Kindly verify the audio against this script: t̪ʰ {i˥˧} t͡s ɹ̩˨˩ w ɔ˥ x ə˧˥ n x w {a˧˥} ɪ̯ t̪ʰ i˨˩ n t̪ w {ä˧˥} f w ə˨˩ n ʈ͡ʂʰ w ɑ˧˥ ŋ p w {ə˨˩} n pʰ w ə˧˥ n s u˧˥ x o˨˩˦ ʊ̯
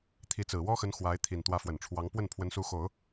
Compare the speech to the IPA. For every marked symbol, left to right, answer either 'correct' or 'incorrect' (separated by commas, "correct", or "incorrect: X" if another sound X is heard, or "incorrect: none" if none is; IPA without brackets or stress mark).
incorrect: i˧˥, correct, correct, incorrect: ə˥˩